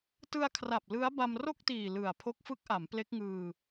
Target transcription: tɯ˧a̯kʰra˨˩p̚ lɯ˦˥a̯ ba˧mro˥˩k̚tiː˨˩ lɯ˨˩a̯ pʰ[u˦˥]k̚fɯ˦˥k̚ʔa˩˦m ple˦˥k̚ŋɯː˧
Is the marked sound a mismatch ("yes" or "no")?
yes